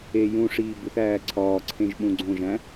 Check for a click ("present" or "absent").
present